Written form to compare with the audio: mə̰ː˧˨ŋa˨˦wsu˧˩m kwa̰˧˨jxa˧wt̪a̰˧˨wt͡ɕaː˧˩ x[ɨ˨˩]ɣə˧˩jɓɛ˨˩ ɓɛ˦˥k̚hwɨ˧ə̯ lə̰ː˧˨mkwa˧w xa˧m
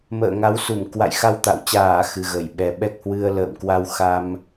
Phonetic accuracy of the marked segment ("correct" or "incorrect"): correct